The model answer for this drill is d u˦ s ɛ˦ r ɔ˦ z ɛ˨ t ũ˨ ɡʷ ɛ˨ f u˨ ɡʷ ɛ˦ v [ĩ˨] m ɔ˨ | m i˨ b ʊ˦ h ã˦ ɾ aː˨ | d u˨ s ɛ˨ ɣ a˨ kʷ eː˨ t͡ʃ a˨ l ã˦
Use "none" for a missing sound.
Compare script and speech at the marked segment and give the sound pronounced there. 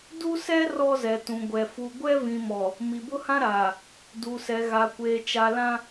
ĩ˨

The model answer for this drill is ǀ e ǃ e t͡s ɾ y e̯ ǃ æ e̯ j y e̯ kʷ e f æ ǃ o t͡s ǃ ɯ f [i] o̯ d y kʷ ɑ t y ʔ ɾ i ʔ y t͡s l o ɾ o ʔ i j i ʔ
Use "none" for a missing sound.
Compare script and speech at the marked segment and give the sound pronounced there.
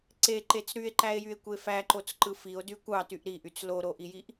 i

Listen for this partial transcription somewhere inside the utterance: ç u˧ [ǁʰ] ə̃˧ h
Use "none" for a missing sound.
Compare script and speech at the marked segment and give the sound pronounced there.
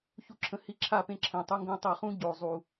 ǁʰ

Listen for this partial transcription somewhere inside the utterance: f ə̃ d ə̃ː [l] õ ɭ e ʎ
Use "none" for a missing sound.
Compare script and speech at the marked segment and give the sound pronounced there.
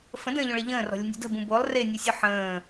ʎ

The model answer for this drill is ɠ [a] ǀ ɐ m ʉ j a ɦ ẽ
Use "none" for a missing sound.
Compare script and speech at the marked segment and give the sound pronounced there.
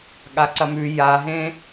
a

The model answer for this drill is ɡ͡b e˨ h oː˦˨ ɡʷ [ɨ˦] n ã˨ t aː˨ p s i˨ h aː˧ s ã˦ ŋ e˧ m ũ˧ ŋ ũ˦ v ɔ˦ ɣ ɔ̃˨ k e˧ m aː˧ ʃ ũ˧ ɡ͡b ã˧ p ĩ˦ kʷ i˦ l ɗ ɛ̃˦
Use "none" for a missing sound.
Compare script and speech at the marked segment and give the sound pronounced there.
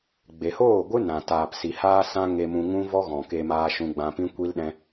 ɨ˦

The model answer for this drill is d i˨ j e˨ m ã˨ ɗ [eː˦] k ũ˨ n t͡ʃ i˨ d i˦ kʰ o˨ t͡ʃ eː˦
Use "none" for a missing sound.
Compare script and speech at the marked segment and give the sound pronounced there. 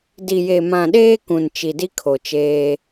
eː˦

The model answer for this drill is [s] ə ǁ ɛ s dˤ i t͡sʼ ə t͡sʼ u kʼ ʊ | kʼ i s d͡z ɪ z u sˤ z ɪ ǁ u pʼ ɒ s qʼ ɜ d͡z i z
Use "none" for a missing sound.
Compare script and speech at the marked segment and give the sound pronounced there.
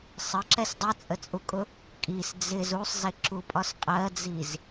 sˤ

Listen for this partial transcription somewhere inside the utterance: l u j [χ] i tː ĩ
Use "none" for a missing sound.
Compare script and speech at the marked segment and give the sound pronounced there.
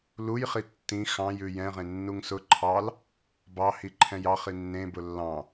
χ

